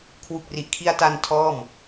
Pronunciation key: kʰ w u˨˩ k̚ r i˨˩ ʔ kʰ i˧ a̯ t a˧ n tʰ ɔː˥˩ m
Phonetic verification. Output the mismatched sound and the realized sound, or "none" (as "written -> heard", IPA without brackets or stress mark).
none